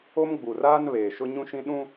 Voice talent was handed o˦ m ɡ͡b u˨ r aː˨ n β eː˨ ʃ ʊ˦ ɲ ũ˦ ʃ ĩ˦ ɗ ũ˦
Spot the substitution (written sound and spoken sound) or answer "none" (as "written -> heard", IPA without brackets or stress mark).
aː˨ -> aː˦